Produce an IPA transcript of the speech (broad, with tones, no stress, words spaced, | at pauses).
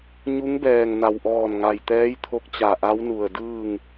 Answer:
ɲu˧˥ŋbɛː˧˩ŋna˩wʔɔː˧˩n ŋa˩jt̪ɛː˧˥jt̪ʰo˧˥k̚ t͡ɕa˧˩ʔa˧˥wnu˧˩ə̯ dɯː˥˨ŋ